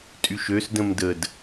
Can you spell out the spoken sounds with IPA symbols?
tʼyʃøsdə̃m dəd

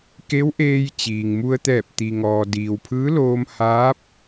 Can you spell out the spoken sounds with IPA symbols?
ke˧˥wʔeː˧j t͡ɕiː˩ŋmu˧ə̯t̪ɛː˧˩p̚ t̪i˩ŋɔː˩ diː˩wpʰɯː˧˥loː˧m haː˧˥p̚

